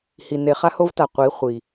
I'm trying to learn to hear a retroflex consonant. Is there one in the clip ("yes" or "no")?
no